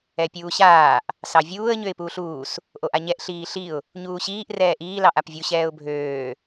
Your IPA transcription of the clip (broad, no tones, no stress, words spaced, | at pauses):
ɛpʲuːɕaːʔ | sɑvʲuːə̯ ɲøɪ̯puːɬuːs | ʔoʔaɲɛʔ ɬiːɬiʊ̯ | ɲuːɕiːʔ rɛːʔiː lɑʔapvʲu ɕɛːʊ̯bʱøː